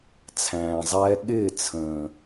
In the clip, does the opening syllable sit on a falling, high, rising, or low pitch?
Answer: low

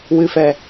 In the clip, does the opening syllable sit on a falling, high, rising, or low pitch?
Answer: low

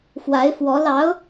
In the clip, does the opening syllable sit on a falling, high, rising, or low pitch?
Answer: rising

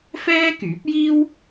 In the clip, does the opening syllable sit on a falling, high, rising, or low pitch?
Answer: high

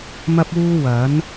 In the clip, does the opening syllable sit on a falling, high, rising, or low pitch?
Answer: high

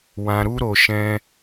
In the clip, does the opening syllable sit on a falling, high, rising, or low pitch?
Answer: low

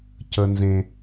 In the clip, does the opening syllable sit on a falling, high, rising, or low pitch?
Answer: high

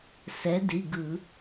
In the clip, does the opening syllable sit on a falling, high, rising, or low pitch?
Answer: rising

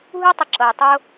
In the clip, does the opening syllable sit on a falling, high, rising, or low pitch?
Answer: high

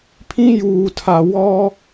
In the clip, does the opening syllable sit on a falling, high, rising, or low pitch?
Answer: high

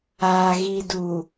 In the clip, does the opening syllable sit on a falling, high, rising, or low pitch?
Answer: low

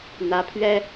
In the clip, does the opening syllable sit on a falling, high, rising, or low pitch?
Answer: rising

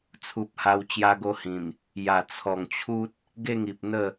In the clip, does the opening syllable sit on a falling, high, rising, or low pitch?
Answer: low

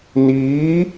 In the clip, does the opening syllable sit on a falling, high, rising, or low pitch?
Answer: rising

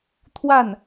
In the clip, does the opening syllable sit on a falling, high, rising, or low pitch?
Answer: falling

